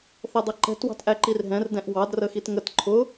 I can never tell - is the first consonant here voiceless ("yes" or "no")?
yes